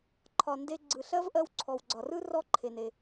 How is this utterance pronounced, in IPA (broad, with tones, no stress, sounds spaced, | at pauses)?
ǃʰ ɒ˩ n d e˧ ɡ͡ǀ ɯ˩ ɬ ɜ˥ v ʔ ɜ˧ w ǀʰ ɔ˩ w ɡ͡ǀ ɒ˩ r ɯ˥ r ɔ˧ ǃʰ e˩ n e˩